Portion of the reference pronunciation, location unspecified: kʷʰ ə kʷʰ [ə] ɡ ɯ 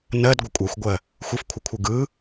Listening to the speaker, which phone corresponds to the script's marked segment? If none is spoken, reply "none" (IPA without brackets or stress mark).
ɯ